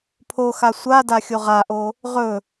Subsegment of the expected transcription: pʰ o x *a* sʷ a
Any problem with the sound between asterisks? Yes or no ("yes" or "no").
no